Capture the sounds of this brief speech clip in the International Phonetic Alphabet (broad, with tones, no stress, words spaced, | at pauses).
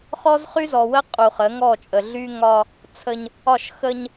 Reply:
χɔ˦zχy˦zɔ˨wə˦ qʼu˨χə˨˦ŋɔ˦˨ t͡ʃʼə˨ɮy˦ŋɒ˦ | t͡sʰə˦ɲ | ɒ˦˨ʃ xə˦ɲ